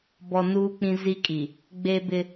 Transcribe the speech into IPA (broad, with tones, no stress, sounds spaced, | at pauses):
b ɔ˨ n uː˦ k͡p ĩ˦ z i˦ kʼ i˨ | ɡ͡b eː˦ b ɪ˦